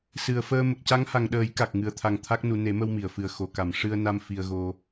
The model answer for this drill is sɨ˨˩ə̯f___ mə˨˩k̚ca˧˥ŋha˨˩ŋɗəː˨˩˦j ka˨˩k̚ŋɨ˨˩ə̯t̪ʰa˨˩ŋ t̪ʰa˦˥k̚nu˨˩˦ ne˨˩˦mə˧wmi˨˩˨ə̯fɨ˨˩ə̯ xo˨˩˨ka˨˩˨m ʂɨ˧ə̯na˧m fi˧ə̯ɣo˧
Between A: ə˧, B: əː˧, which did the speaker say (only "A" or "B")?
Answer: B